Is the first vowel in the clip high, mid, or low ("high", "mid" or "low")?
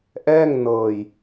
mid